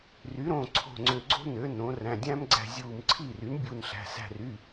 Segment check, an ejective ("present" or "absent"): absent